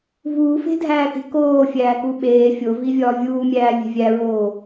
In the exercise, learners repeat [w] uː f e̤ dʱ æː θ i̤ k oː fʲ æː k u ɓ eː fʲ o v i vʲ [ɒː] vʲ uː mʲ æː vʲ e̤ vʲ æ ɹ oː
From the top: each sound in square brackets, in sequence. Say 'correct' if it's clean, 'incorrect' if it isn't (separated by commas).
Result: incorrect, correct